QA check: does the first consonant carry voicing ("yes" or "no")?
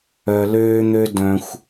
yes